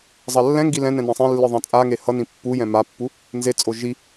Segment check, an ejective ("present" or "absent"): present